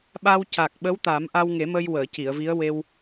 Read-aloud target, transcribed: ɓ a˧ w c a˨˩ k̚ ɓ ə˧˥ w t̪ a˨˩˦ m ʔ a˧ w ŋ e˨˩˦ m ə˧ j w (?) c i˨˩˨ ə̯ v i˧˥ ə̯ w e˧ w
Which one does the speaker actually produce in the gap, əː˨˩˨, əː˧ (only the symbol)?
əː˨˩˨